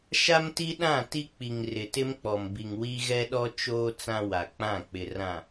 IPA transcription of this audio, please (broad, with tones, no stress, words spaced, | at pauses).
ʃa˦mti˦ ɗã˦˨ti˦k͡pi˨ŋ rɪ˨tɪ˦mk͡pɔ˨m bi˨ŋwi˦ ɣɛ˦ɗɔ˦ t͡ʃoː˦ t͡sã˦wa˨ k͡pã˦˨k͡pɪ˨rã˨